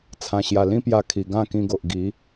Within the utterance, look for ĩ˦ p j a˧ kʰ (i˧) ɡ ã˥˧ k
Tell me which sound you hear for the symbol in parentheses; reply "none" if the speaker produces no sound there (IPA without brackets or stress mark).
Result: i˨˩